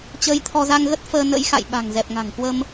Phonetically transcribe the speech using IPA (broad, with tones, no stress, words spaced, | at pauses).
t͡ɕəː˧jt̪ʰɔ˧za˧ŋɣə˦˥t̚ fəː˧nə̰˧˥jxa̰˧˨j ɓa̤˨˩ŋzɛ˨˩p̚ŋa̤˨˩ŋkwə˧m